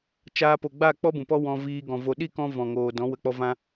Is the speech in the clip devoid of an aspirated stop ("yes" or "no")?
yes